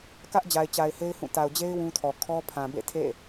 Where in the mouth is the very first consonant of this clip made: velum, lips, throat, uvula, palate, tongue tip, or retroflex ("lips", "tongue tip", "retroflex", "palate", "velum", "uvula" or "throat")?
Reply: velum